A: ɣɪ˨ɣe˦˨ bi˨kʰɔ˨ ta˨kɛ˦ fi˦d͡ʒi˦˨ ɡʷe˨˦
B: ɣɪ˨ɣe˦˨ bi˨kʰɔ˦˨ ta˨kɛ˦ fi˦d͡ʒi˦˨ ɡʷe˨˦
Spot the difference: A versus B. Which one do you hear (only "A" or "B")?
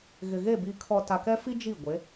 A